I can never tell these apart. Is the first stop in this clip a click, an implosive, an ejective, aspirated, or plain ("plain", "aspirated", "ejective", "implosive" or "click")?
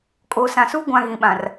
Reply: ejective